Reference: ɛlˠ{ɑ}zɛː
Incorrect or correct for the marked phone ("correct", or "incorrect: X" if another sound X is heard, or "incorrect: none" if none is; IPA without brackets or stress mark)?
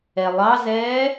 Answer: correct